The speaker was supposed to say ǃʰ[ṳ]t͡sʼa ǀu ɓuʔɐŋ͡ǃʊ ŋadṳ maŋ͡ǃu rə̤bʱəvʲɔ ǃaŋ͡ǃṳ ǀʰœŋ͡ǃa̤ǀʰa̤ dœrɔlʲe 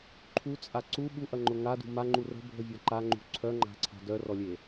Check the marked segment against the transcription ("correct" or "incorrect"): incorrect